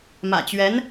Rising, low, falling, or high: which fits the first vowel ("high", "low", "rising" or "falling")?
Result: low